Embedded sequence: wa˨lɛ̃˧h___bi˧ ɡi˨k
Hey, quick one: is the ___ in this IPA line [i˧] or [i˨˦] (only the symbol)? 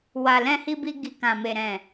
i˧